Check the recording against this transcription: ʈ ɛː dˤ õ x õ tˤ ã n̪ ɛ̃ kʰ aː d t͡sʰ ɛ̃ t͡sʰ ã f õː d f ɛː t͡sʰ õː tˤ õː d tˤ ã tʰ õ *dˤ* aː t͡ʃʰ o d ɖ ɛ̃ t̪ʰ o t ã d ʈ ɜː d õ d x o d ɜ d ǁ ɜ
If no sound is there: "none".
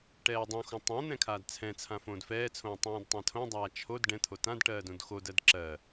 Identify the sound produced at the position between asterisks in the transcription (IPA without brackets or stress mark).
dˤ